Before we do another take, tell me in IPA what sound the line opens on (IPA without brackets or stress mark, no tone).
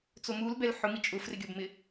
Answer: t͡s